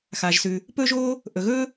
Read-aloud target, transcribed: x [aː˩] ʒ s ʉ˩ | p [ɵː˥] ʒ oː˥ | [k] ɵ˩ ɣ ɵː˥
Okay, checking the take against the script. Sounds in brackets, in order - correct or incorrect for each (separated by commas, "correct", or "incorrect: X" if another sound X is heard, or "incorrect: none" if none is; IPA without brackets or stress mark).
correct, correct, incorrect: ʔ